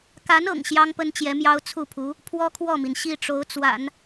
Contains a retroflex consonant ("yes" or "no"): yes